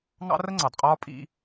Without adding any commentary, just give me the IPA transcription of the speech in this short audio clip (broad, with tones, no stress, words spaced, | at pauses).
ŋɑ̰˦rə˦ŋ͡ǀɑ˨dqʼɒː˦ pʼḭ˦